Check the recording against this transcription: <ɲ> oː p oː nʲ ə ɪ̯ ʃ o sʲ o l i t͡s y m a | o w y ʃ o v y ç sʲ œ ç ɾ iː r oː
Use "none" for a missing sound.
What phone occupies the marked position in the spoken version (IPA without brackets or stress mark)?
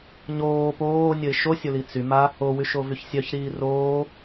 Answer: ɲ